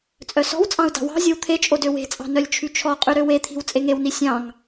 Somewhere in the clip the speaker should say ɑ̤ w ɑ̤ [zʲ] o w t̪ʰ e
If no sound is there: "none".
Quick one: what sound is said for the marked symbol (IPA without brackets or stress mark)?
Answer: zʲ